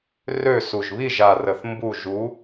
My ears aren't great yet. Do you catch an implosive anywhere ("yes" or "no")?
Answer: no